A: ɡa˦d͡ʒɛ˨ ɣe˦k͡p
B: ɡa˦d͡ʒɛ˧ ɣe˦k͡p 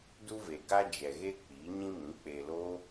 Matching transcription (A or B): A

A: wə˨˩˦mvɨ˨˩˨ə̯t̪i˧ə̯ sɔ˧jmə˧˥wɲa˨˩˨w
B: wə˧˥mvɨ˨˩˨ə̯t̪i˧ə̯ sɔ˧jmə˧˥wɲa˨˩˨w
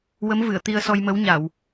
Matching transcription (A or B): B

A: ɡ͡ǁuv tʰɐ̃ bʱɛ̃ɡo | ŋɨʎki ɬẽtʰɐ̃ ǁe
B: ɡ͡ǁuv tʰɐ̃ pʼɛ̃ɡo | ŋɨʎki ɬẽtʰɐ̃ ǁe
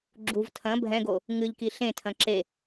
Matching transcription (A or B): A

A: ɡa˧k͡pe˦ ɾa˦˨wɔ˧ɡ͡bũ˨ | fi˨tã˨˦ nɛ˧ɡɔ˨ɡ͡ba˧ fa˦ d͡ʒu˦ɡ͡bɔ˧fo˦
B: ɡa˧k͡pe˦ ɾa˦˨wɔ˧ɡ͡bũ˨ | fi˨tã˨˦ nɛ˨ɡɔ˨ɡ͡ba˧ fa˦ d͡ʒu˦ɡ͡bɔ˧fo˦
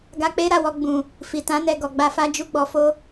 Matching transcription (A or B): A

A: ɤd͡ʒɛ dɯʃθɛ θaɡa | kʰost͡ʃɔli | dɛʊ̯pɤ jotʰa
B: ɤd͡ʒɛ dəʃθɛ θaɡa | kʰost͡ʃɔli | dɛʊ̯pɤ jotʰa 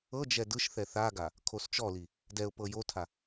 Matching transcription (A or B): A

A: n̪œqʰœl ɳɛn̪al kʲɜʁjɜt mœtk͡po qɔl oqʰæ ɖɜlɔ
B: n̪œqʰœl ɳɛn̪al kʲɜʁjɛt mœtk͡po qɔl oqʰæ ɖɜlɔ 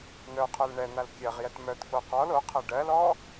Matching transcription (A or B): B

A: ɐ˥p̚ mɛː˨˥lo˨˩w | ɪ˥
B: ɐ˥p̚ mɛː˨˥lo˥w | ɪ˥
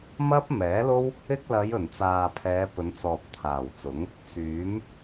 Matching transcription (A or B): B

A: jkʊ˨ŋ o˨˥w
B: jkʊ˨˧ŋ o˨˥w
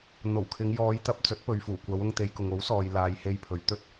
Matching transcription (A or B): A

